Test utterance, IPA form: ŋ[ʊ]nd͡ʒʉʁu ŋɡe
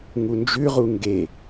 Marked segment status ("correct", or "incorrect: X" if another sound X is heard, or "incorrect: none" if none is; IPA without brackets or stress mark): incorrect: u